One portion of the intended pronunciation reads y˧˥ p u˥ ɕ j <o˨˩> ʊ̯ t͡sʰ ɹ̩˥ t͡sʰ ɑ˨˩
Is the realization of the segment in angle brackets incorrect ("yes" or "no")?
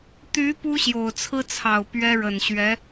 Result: no